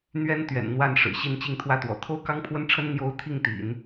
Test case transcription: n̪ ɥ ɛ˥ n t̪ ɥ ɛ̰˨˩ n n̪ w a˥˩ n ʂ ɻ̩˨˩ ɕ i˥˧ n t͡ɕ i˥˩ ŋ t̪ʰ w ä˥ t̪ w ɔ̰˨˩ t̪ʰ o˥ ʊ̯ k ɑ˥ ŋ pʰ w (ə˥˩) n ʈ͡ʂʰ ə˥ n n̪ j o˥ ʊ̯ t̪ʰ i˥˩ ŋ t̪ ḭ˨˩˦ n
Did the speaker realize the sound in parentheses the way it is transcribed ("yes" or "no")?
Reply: no